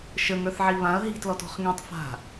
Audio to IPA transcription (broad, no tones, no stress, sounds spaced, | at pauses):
ʃ ə ŋ ə˞ θ ʕ i β ã ɐ̯ ɦ i̤ t l ɔ t ɔ̤ χ ŋ ĩ tˤ f a̤